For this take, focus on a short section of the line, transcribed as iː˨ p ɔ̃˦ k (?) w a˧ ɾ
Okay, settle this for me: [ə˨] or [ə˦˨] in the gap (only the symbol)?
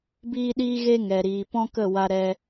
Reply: ə˦˨